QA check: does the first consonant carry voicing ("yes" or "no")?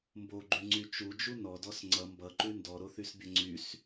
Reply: yes